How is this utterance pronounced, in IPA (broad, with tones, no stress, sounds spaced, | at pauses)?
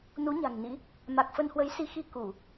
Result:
n u˨˦ ɲ a̤˨˩ ŋ n ḭ˧˥ | m a˨˩ k̚ f ə˧ n h w ə˨˦ j s i˨˦ x i˧ k u˧˩˨